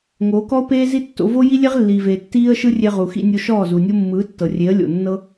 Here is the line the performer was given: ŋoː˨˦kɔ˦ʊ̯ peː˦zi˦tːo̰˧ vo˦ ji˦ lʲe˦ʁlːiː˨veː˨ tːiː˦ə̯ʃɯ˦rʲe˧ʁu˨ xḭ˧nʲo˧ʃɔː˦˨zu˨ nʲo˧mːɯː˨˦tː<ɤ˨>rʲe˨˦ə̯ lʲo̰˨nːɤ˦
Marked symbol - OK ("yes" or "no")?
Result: yes